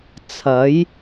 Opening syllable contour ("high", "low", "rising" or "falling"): rising